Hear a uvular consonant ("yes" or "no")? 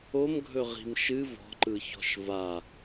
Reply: yes